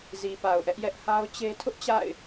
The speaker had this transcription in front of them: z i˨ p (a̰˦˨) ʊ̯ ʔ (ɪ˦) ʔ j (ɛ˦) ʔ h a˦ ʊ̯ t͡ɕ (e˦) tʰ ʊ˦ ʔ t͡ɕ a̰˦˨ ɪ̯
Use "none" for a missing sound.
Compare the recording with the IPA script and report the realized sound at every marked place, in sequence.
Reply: a˨, ɛ˦, ɛ˦, e˦

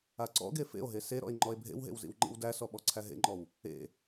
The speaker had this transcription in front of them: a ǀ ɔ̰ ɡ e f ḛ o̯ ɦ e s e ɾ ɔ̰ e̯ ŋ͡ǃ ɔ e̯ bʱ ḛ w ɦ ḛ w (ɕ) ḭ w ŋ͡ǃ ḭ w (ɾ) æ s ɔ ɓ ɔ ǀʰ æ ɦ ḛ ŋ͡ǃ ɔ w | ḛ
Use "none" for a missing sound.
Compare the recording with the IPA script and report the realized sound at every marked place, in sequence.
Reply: z, d

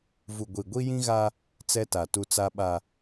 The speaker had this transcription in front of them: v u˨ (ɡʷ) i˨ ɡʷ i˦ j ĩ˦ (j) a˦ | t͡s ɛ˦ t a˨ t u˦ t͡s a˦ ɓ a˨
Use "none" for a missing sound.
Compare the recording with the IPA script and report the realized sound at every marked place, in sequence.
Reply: ɡʷ, ɣ

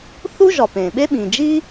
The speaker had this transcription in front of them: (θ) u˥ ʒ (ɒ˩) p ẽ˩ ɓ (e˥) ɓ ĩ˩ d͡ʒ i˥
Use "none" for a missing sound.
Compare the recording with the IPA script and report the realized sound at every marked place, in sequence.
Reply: θ, ɒ˩, e˥

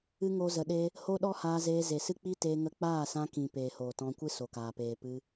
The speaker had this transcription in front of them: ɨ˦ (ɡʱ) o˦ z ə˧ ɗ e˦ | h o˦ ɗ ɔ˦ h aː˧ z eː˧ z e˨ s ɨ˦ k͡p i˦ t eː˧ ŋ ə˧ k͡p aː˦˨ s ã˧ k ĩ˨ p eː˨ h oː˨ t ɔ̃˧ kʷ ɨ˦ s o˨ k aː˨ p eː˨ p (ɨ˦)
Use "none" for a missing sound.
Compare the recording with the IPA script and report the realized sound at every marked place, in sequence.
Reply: ŋ, ɨ˧

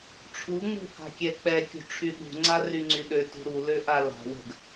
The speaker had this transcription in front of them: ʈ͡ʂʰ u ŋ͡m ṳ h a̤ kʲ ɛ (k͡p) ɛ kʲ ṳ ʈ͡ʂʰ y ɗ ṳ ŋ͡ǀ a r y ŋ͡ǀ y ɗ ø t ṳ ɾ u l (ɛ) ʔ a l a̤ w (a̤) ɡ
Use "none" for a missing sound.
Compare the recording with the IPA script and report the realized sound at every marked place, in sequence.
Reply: k͡p, ø, ə̤

